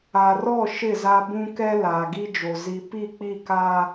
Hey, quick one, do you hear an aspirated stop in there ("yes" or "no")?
no